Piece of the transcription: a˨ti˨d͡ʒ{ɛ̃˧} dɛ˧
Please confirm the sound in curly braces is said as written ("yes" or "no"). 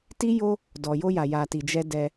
no